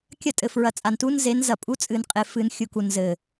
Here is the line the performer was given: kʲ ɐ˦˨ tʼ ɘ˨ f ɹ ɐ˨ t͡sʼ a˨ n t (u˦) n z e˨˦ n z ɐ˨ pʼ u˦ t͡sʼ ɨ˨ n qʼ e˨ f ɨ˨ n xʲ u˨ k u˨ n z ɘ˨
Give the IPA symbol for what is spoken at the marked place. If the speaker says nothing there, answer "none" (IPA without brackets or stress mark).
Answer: u˦